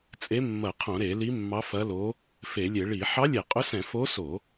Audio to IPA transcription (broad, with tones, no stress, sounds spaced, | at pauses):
t͡sʼ e˧˥ mː ɐ˧˩˧ qʰ õ˧˩˧ ɾ e˧˩˧ l i˧˥ mː ɑ˧˥ f ɐ˧˥ l o˧˥ | f e˧˩˧ lʲ e˧˩˧ ɭ i˧˩˧ ħ ɑ˧˥ lʲ e˧˩˧ qʼ ʊ˧˥ s ɛ̃˧˩˧ f o˧˥ s o˧˩˧